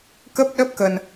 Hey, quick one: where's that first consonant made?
velum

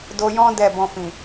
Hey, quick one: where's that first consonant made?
tongue tip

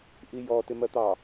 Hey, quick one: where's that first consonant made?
throat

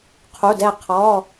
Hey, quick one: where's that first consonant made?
uvula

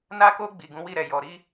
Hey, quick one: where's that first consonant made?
tongue tip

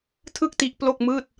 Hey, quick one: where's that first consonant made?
tongue tip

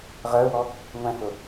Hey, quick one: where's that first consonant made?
uvula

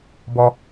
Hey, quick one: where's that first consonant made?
lips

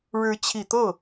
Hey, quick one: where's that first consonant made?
retroflex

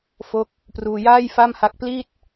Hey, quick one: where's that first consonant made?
lips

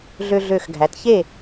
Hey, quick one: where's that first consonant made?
tongue tip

